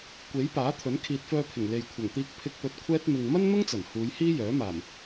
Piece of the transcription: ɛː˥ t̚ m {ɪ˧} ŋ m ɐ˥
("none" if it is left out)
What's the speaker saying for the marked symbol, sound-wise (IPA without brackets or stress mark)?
ɪ˧